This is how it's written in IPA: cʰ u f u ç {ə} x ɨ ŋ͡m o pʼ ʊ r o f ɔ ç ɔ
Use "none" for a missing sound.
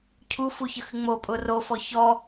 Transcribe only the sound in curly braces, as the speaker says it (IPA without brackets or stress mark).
ə